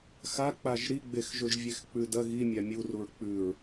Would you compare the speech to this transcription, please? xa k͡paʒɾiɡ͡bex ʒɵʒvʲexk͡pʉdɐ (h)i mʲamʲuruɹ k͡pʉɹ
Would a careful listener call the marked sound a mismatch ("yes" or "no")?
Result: yes